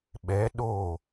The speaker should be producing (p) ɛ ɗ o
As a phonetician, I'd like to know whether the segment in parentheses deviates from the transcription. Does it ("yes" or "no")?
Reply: yes